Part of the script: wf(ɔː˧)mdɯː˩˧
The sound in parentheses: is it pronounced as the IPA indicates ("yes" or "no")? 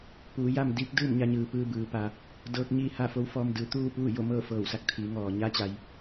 yes